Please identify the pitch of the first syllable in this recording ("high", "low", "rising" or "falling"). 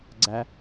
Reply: high